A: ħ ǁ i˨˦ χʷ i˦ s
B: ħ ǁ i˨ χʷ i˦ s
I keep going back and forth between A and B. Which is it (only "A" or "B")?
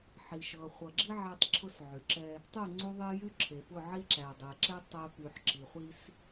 B